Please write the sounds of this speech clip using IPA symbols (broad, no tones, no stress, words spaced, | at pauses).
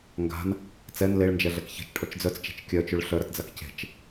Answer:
ŋɡa̤n | t͡sɛn leɭnd͡ʒɛɮɛk çe̤t͡ʃʈʰɔt͡ʃ d͡zœt͡st͡ʃe̤t͡ʃ kʲœt͡ʃʉɭ ɬœɾɐtd͡zak ce̤t͡ʃ